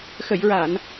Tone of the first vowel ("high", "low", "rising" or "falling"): low